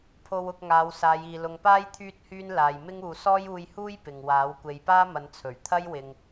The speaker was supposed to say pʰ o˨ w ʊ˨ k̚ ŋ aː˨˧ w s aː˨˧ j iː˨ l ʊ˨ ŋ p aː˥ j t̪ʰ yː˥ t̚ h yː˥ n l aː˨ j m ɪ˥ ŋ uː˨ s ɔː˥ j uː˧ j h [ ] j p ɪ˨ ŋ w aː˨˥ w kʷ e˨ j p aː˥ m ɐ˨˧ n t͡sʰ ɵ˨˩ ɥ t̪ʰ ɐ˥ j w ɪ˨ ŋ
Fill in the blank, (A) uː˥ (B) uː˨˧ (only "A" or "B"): A